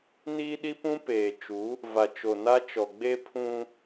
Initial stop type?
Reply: implosive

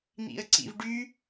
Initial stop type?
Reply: click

